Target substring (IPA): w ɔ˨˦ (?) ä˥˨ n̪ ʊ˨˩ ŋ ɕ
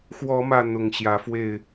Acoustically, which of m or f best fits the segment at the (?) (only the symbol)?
m